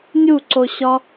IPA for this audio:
nʲ u ǀ o ɕ ɒ

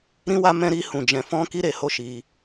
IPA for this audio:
ɾ ĩ˦ w a˦ m ɛ̃˦ ɾ i˦ h ũ˧ d͡ʒ ɛ̃˧ f ɔ̃˦ k i˧ ɾ e˨ h o˧ ʃ i˧

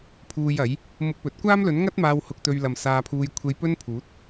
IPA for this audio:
pʰ uː˧ j ɐ˨˥ j | m ʊ˧ k̚ p ɵ˨˥ t̚ kʷ aː˥ m l ɵ˨˥ n ŋ ɐ˥ t̚ m aː˧ w h ʊ˧ k̚ t̪ ɵ˧ ɥ l ɐ˨ m s aː˧ pʰ uː˧ j kʷʰ e˧ j p ɵ˥ n pʰ uː˨˥ t̚

